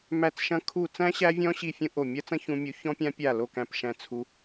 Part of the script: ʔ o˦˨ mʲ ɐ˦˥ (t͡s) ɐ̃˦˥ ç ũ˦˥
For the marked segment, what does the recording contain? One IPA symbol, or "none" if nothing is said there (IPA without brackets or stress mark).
t͡s